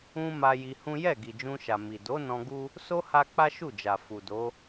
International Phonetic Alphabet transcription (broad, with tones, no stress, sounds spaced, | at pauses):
ũ˧ m a˧ j i˧ h ũ˦ j ɛ˦˨ ɡ i˨ d͡ʒ ũ˧ ʃ a˨ m i˨ d o˨˦ n ɔ̃˧ ɡ u˦ | s o˦ h a˦ k͡p a˦ ʃ u˦˨ d͡ʒ a˨ f u˨ d o˨˦